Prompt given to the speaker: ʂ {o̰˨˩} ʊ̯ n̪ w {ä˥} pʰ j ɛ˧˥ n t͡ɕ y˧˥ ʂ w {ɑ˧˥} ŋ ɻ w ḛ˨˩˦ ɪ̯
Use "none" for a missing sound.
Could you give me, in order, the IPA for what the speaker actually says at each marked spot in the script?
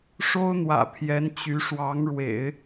o˥, ä̰˨˩, ɑ˧˥

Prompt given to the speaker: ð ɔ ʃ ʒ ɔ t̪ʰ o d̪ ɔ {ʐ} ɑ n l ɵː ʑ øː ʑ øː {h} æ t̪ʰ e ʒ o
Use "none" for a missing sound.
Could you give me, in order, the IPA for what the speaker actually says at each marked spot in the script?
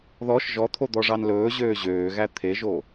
ʐ, ɣ

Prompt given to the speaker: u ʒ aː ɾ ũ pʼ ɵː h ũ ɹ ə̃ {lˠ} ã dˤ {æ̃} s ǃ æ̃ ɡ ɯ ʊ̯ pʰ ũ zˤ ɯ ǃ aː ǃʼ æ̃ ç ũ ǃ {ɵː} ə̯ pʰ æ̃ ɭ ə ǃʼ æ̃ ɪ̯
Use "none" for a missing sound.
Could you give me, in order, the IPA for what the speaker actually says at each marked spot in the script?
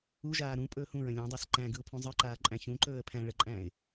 lʲ, æ, ɵː

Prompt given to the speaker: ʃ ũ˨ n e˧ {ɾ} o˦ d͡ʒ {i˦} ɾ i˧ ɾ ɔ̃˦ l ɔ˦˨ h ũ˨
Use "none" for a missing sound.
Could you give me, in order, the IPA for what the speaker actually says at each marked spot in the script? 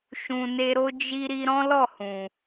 ɾ, i˦

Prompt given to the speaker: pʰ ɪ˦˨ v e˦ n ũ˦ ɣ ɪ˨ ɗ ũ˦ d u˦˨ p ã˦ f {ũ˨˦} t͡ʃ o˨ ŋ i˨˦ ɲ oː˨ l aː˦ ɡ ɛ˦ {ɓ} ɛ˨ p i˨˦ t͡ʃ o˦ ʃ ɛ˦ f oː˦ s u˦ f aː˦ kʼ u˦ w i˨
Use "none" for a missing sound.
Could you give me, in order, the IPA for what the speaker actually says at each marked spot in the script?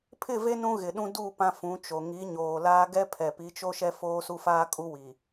ũ˨˦, pʰ

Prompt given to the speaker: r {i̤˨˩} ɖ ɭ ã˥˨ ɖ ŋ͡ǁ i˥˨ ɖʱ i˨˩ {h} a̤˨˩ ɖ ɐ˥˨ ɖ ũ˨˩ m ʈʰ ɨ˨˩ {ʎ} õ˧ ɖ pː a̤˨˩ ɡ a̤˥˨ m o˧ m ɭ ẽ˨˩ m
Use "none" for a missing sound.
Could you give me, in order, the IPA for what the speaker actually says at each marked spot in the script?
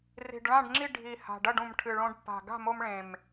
i̤˨˩, h, ɭ

